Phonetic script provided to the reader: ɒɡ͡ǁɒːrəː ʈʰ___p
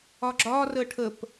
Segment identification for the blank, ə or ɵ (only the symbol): ə